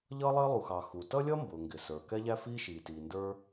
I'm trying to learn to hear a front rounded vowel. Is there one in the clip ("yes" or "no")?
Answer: no